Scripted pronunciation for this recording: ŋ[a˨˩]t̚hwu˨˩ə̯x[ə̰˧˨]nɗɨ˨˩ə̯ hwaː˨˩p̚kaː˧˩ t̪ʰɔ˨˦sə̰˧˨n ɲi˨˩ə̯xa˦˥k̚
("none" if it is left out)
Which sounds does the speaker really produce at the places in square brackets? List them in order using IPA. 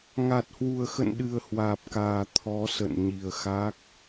a˨˩, ə̰˧˨

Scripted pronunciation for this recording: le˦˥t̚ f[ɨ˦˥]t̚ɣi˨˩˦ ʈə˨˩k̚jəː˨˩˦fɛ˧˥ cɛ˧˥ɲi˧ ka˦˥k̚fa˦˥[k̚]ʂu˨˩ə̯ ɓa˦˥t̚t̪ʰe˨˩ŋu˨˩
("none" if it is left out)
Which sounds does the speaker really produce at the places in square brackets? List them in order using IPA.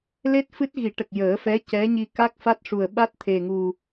ɨ˦˥, t̚

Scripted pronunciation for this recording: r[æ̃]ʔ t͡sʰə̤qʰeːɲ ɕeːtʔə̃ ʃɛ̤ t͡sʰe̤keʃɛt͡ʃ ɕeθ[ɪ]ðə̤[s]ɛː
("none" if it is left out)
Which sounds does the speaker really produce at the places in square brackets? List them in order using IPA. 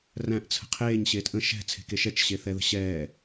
æ̃, ɛ, ɕ

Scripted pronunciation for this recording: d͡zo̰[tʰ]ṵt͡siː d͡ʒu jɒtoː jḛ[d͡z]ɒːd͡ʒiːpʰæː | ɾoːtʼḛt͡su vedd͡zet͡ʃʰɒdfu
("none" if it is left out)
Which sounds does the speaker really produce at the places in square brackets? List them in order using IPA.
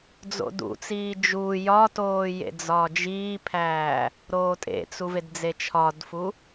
d, d͡z

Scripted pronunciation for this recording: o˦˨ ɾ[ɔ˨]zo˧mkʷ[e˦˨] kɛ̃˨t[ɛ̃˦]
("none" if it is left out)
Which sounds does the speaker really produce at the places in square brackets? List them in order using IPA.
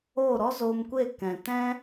ɔ˦, e˦˨, ɛ̃˦

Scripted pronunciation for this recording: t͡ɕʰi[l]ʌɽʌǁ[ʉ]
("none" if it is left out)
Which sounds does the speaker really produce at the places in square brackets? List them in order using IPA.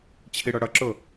ɽ, ʊ

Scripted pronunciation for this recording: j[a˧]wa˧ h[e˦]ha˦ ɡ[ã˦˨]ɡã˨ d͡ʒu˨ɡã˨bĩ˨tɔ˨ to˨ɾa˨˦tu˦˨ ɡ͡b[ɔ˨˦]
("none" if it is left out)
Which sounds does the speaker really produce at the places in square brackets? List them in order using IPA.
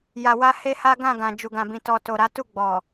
a˨, e˦, ã˦˨, ɔ˨

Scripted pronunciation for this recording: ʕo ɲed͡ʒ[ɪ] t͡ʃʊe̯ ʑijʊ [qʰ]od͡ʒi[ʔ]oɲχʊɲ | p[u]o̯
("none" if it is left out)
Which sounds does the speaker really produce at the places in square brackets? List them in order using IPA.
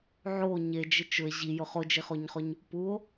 ɪ, χ, χ, u

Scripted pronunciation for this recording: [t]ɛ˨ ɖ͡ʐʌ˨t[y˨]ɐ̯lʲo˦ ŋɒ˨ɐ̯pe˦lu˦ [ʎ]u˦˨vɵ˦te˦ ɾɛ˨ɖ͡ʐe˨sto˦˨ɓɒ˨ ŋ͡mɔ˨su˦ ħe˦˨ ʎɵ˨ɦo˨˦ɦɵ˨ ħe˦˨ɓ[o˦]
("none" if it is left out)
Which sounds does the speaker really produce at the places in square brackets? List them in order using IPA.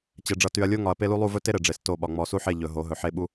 t͡ɕ, y˨, lˠ, u˦

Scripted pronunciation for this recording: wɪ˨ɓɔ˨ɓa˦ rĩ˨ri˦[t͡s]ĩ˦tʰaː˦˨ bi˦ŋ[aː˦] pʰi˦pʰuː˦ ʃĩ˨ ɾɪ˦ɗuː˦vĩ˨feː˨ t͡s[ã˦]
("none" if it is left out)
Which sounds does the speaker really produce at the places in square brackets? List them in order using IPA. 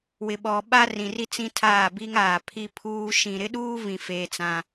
t͡s, aː˨, ã˦

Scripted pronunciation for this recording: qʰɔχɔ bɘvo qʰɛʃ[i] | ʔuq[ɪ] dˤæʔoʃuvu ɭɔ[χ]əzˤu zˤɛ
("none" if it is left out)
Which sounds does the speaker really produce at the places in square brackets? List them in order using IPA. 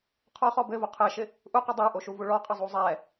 ɪ, ɪ, qʼ

